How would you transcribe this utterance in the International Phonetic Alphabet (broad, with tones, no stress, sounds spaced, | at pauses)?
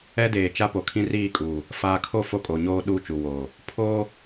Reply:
ɛ˦ d eː˨ t͡ʃ a˦ p o˨ kʰ ĩ˦ r iː˦˨ kʼ uː˨ | f aː˨ kʰ o˦˨ f o˦ kʼ o˨ ɲ oː˦ ɗ uː˦ t͡ʃ u˨ w oː˨ | pʰ oː˦